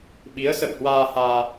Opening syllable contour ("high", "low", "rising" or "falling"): rising